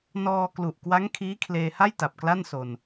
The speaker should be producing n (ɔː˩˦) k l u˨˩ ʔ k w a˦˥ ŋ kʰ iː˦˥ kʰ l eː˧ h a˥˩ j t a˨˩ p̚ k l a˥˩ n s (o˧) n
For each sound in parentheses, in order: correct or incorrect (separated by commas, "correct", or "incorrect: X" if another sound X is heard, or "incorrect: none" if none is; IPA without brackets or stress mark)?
incorrect: ɔː˧, correct